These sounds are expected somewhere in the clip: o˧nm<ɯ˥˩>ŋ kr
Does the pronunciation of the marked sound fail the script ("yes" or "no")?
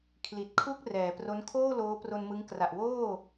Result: yes